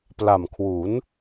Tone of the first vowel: low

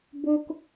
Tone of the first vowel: high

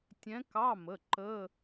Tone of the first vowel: rising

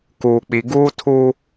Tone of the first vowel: low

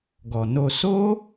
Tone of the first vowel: low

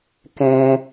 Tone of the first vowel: high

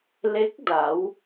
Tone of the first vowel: rising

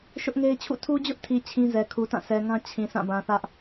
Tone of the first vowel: high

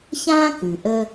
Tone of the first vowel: high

